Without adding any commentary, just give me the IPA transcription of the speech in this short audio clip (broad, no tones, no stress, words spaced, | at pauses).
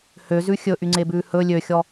høzʉ xʲɵʔyŋ͡ǀebʉː hɵ lʲøxʲɔ